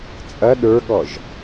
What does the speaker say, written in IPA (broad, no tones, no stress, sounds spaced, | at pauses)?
t͡sʼ ɐ ɗ ə˞ ɠ ɔ ʒ